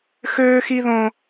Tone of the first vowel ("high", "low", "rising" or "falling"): high